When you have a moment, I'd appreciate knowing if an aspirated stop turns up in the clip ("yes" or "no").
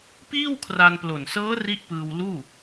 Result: yes